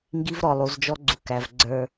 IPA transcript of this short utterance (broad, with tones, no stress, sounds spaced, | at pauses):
ŋ ɡ i˦ v ɾ ɔ˨ lˠ u˨ z d͡ʒ ɔ˦ ɡ͡ǀ u˨ k æ˨ v ɡ͡ǀ ə˞˦